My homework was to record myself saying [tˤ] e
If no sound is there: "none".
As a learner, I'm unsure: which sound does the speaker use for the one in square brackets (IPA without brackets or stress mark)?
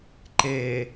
ǃ